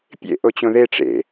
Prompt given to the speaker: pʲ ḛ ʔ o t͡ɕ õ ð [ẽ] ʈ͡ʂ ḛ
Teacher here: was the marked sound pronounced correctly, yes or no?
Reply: no